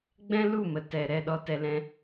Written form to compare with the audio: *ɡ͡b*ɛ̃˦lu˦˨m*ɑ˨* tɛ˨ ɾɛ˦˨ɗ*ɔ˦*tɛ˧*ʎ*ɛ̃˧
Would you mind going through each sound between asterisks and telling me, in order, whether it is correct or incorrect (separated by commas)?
correct, incorrect, correct, incorrect